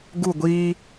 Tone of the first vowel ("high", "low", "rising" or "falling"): falling